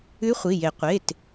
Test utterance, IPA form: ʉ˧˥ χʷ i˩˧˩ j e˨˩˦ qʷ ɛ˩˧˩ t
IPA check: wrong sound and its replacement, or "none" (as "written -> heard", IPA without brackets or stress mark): ɛ˩˧˩ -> e˩˧˩